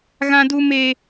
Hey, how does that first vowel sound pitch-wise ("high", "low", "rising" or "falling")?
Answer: high